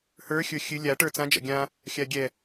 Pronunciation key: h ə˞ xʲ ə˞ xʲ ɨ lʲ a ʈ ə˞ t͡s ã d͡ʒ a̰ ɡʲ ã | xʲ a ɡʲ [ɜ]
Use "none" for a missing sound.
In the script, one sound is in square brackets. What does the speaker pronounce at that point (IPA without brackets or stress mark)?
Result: ɛ